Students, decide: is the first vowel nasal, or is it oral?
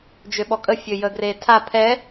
oral